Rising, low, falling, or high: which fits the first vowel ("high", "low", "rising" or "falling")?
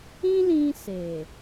high